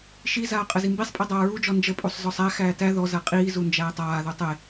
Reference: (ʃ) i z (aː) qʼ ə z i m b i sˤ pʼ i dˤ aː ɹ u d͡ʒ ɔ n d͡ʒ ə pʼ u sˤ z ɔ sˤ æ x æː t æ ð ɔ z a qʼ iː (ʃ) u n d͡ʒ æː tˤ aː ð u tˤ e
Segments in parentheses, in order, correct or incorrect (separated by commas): correct, correct, incorrect